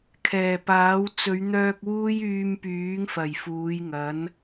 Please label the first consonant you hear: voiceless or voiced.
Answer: voiceless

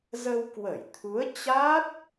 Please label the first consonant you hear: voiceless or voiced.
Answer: voiced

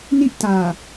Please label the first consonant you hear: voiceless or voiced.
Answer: voiced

